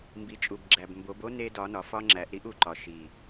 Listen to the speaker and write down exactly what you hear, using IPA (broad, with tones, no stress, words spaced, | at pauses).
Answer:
mbi˨t͡ʃʼu˨bɡ͡ǁæ˨bmbo˨˦b o˦ ne˦ dɒ˨˦nɒ˨fɒ˦ŋ͡ǁæ˨˦ʔ ɾi˦ʔu˨ǃɒ˨ ʃi˨